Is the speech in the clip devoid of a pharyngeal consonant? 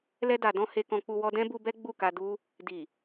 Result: yes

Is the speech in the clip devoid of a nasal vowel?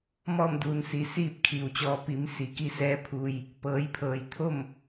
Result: yes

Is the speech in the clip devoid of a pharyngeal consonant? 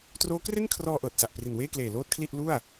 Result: yes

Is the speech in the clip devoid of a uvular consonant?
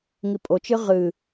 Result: no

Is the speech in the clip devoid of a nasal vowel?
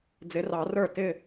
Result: yes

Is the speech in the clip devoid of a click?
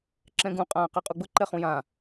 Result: no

